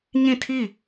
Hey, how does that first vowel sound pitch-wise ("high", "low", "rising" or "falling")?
falling